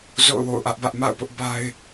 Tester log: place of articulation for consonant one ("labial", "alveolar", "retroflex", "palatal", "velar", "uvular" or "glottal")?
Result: alveolar